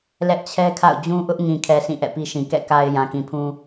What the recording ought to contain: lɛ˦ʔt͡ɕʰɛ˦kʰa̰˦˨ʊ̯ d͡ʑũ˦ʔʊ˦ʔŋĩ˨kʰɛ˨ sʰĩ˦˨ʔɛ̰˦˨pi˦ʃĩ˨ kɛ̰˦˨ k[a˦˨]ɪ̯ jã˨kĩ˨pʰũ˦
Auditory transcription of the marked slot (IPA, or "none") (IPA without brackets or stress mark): a˨